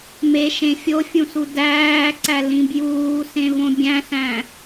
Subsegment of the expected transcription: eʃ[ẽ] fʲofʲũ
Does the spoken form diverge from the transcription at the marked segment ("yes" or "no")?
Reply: no